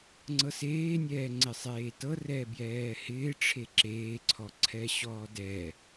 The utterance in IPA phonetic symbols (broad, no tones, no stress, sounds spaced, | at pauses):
ŋ͡ǀ ɤ s eː nʲ ɛː ŋ͡ǀ ɪ sˤ eː t ɤ r ɛ b j ɛː h ɪː ʈ͡ʂʰ e ǁ eː ǀʰ ɔ ǀʰ ɛ ɕ ɔː d ɛ